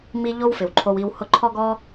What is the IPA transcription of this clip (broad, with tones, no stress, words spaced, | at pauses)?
mi˧ ʎo˦wfɪ˨wǃʰo˧wi˧w hʊ˧ǃʰɔ˦ɡɔ˦